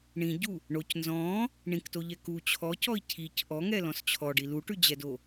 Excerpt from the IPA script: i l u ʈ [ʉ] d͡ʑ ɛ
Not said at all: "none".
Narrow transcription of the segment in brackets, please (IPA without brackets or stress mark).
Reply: ʉ